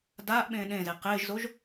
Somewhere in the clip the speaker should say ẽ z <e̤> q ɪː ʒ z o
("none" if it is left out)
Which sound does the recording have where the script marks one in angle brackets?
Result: e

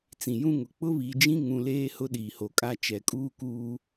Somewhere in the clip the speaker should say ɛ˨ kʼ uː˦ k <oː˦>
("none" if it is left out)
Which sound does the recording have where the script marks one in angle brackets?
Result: uː˦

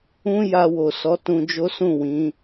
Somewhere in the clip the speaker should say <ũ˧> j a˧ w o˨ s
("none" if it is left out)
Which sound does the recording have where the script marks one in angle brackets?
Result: ũ˧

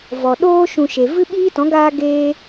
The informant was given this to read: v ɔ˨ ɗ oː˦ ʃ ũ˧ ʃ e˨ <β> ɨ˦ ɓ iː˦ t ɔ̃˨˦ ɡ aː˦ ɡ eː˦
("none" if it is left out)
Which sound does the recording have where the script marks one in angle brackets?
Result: v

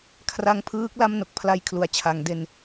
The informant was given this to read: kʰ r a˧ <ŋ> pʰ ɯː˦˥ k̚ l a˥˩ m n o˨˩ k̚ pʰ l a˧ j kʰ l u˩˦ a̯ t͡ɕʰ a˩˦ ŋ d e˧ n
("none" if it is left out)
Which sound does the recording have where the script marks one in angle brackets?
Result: ŋ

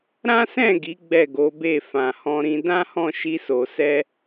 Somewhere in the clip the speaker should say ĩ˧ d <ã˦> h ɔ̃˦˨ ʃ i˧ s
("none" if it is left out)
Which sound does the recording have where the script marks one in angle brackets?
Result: ã˦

